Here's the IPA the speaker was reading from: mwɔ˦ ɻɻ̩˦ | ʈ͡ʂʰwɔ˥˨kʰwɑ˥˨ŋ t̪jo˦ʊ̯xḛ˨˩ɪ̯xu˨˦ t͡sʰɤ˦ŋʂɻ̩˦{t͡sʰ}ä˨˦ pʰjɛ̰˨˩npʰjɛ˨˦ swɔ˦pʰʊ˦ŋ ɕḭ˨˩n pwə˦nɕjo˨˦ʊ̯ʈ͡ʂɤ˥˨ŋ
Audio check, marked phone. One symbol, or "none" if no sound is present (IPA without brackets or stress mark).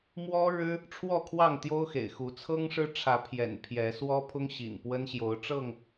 ʈ͡ʂʰ